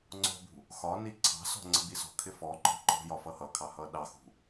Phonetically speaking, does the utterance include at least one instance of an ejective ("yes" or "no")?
no